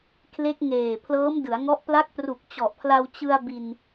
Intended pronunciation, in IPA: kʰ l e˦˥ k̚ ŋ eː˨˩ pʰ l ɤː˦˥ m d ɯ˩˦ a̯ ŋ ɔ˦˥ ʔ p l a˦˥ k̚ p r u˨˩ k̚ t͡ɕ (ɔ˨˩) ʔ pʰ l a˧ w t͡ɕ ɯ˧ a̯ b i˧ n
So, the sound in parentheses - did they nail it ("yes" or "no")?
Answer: yes